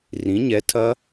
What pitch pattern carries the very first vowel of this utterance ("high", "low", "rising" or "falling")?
rising